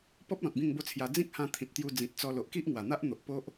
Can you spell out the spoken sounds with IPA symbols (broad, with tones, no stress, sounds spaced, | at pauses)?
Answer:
p ɔ˦ p̚ l ɔ̃˨ t̚ b ĩ˥˧ ŋ b o˥˧ t͡sʰ j a˧ d͡z ĩ˦ k̚ h ã˧ t̪ʰ ĩ˨ t̚ t̪ j u˧ d͡z ĩ˨ t̚ t͡s ɔ˧ l o˨ ʔ k i˦ ʔ ŋ w a˨˩ n̪ a˦ ʔ n̪ o˨ ʔ p o˦ ʔ